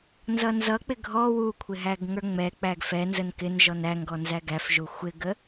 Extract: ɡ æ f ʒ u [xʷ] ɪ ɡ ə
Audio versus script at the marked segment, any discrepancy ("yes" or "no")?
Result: no